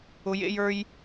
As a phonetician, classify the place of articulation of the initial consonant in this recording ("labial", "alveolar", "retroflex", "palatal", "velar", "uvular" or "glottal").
palatal